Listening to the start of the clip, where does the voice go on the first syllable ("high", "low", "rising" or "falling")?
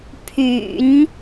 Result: low